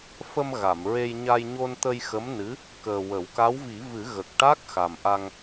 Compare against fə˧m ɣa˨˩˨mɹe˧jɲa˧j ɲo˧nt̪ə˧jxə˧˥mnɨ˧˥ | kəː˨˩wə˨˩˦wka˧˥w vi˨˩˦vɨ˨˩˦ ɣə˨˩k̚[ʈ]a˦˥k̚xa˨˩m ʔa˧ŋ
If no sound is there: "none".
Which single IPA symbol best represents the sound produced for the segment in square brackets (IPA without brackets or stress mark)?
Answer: ʈ